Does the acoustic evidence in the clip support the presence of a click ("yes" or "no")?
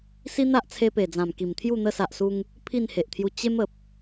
no